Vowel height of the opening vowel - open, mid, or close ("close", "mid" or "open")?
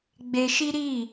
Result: mid